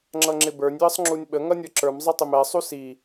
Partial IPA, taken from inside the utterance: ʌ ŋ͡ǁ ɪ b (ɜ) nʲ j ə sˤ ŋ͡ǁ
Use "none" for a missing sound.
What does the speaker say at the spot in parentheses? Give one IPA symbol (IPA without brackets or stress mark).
ə˞